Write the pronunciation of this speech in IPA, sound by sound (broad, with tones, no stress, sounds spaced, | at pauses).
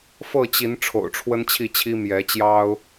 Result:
f ɤ˥˨ t͡ɕ i˨˦ n ʈ͡ʂʰ o̰˨˩ ʊ̯ ʈ͡ʂʰ w ə˦ n t͡ɕʰ i˥˨ t͡ɕʰ i˦ m j ɛ˨˦ t͡ɕ j ɑ˦ ʊ̯